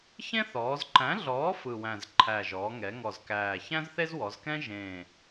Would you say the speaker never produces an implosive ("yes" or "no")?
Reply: yes